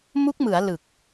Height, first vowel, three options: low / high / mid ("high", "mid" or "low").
high